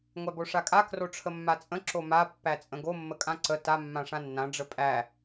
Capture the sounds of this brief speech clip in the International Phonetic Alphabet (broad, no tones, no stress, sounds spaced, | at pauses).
ŋʷ æ b o ʂ a kʼ a k r o ʈ͡ʂʰ ə mː a t͡sʼ ə̃ ǁ o m a pː æ t͡sʼ ə̃ ɡ o mː ə kʼ ã ǀ ə t a mː ã ʂ ã nː ã ɖ͡ʐ ə pʼ æ